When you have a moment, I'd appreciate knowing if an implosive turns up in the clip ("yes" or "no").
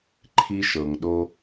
yes